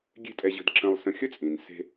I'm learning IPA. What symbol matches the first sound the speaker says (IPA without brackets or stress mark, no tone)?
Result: ɡʲ